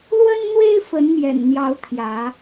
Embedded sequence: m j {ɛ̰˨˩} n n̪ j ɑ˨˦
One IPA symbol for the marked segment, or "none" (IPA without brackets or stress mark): ɛ̰˨˩